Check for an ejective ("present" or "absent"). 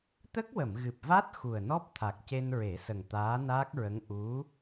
absent